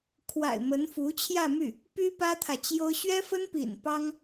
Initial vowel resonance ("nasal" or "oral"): oral